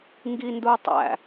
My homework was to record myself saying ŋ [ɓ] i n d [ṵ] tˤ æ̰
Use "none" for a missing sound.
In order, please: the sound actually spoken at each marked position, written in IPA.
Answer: ɡ, u

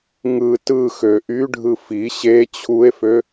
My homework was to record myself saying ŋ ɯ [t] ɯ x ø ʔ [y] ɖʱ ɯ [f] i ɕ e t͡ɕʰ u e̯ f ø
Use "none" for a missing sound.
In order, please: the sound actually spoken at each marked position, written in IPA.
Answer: t, y, f

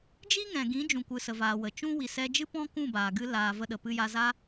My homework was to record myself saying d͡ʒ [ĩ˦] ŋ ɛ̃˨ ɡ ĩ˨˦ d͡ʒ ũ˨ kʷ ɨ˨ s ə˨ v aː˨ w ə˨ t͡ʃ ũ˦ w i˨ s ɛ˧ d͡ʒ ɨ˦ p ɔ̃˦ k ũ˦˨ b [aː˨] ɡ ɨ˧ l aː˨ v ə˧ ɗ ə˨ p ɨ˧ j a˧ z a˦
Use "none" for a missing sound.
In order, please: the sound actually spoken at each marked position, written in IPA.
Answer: i˦, aː˨

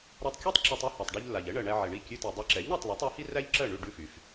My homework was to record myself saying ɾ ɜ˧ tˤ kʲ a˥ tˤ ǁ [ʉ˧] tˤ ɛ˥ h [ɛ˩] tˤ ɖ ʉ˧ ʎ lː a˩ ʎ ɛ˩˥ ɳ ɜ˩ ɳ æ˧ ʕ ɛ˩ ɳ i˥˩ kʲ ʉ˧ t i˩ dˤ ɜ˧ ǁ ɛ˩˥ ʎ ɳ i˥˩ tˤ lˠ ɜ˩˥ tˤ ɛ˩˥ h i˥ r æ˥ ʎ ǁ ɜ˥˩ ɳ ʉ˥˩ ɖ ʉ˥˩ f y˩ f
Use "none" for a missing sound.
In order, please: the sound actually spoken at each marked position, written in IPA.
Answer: ʉ˧, æ˩

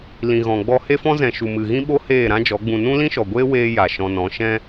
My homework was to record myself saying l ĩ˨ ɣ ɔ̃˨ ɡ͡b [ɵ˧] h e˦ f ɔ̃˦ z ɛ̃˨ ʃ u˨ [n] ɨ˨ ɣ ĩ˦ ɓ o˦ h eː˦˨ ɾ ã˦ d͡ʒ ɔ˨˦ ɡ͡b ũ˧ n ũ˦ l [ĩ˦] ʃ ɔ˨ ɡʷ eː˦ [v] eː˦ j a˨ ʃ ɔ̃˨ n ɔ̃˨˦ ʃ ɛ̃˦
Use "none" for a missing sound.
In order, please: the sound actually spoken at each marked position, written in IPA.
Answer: ɔ˧, m, ĩ˦, w

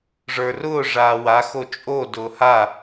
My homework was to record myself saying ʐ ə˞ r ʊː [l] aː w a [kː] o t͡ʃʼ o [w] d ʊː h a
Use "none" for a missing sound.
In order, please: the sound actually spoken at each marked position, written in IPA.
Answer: ʐ, x, none

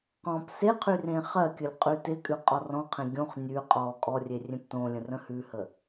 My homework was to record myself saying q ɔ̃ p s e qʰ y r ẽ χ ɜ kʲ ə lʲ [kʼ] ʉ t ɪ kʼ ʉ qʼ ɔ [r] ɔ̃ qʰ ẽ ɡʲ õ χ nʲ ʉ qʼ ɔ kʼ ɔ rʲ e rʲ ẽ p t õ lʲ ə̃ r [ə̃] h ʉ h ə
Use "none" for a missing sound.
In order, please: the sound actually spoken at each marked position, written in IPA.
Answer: qʼ, r, ə̃

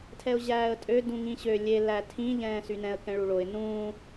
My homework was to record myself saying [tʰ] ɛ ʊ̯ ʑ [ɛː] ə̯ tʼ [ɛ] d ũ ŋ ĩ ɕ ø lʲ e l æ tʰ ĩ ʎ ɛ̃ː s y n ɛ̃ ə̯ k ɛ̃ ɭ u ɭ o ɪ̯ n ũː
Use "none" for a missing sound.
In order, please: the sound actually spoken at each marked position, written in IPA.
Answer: tʰ, æː, ø

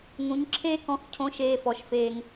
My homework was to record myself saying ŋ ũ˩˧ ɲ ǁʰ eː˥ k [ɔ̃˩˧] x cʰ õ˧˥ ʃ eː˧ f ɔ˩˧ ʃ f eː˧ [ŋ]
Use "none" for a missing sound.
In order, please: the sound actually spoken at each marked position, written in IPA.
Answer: ɔ̃˧, ŋ

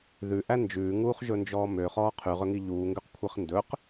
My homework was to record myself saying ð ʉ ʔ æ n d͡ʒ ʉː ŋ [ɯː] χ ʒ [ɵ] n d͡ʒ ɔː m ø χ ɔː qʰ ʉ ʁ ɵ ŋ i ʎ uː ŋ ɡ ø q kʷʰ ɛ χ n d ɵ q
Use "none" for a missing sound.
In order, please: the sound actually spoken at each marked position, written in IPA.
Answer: uː, ɵ

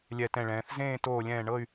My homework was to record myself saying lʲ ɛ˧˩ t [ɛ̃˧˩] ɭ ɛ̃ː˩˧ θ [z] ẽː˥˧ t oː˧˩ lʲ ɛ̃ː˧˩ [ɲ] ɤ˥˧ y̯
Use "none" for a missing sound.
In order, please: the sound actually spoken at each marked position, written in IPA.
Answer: ɛ̃˧˩, z, ɳ

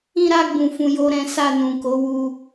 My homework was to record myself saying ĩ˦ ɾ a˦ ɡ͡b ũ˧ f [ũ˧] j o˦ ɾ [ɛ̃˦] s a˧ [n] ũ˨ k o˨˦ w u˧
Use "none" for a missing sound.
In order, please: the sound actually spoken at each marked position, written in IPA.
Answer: ũ˧, ɛ̃˦, n

